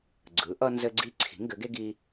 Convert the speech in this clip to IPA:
ɡ͡ǀɯ˩˥ʔʌ˦nzɘ˦ɡ͡ǀi˦ ǀʰi̤˩˥ŋɡɘ˩˥ɡe˦ ɡi˦

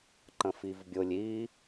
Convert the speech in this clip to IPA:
ǃə̃fivbʲʊlʲ i

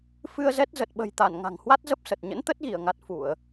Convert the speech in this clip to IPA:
fɨ˧ə̯zɛ˦˥t̚ zə˨˩t̚ɓə̤˨˩jt̪a˧˩n ŋa̤˨˩ŋhwa˦˥t̚zə˦˥p̚sə˨˩t̚ ɲə̰˧˥nt̪ə˦˥t̚ɣi˧˩ə̯ŋa˨˩t̚ fu˧˩˨ə̯

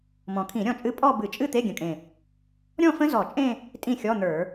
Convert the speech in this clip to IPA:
mɔ̃˨˩kʰĩ˧˩˧ ɾʲɔ̃˥˩t͡ʃʼɨ˦˥ pʼɔ˥˧bɨ˧˩˧t͡ʃʼɨ˥˧ t̪e˧˥˧ɡʲə̃˨˩kʼẽ˨˩ | ɾʲɔ̃˥˧fə̃˦˥ zɔ˧˩˧t͡ʃʼẽ˥˧ | tʼĩ˥˩xʲɔ˧˥˧n̪ə˞˧˩˧

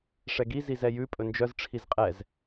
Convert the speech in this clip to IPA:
ʂɛɡi zizɛjʉ pʼɵnd͡ʒœz ʈ͡ʂʰizqʼɛz

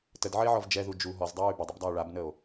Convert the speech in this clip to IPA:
tədʕəe̯ʕɔv d͡ʒɛðu d͡ʒu ɦɔzdˤəɹy bədˤəbdˤao̯ ɭabnəo̯

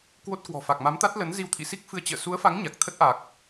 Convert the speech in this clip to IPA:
kwo˦˥t̚kwɔ̤˨˩ fa˨˩k̚ma˨˦mt̪a˦˥t̚ lə˨˦n zi˧wt̪ʰḭ˧˨si˦˥k̚fɨ˧ə̯ t͡ɕə̰ː˧˨ su˨˦ə̯fa˨˦ŋ ɲa˨˩k̚t̪ʰə˦˥t̚ ʔa˨˩k̚

